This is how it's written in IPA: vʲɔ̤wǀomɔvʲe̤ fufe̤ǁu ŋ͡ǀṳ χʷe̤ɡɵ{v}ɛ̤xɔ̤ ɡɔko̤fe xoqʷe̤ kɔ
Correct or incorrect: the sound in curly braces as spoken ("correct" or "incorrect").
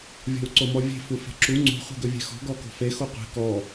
incorrect